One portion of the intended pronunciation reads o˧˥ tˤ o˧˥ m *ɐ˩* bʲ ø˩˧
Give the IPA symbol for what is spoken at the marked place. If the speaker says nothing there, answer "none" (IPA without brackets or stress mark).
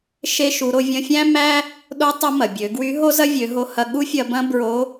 ɐ˩